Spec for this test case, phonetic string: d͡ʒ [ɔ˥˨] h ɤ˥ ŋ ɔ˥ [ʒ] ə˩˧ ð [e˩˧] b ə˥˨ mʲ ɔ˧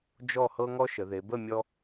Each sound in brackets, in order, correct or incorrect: correct, incorrect: ʃ, correct

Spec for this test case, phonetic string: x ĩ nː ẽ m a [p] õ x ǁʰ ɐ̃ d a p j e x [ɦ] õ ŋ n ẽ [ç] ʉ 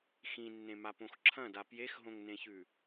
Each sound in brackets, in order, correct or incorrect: correct, correct, correct

